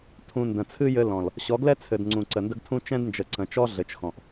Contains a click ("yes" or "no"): yes